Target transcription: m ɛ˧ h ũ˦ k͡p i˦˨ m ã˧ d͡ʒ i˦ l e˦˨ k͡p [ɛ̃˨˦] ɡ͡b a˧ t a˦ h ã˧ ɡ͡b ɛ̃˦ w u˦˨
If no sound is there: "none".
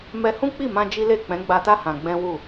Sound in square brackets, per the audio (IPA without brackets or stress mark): ɛ̃˨˦